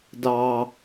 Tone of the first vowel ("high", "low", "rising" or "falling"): high